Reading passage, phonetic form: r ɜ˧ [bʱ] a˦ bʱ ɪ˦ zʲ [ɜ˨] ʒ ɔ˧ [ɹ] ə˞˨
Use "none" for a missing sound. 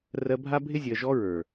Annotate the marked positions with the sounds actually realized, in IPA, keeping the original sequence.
bʱ, ɜ˨, ɹ

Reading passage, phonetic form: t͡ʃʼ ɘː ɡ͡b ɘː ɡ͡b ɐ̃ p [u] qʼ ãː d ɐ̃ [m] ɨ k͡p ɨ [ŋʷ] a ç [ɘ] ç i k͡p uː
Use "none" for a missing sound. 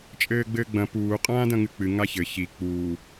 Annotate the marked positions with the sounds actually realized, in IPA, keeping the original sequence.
uː, ŋ, ŋ, ɘ

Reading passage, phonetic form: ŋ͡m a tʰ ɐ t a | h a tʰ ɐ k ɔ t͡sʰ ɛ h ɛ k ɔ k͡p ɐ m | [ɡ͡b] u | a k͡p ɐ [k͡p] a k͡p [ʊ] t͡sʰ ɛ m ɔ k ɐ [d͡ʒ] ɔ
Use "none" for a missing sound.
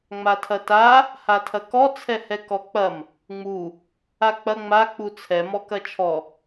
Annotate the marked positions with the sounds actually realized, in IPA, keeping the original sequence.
ŋ͡m, ŋ͡m, u, t͡ʃʰ

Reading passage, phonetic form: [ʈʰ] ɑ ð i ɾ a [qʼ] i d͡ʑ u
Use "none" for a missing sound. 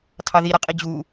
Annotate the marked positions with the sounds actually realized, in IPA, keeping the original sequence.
tʰ, qʼ

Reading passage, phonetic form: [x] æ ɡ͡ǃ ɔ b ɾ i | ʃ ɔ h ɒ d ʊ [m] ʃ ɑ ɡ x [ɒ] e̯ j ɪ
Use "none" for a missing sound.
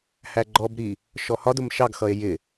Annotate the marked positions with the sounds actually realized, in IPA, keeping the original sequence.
h, m, ʌ

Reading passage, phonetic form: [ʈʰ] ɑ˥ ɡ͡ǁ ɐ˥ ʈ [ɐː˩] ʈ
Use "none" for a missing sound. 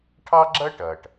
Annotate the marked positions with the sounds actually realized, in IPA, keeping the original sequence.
ʈʰ, ɐː˩

